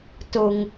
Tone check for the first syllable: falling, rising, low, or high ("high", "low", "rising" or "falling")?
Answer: low